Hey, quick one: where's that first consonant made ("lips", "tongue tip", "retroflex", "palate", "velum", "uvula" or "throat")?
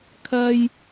velum